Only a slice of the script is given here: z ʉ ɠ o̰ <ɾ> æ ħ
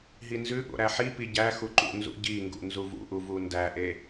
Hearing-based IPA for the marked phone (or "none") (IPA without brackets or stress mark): ɾ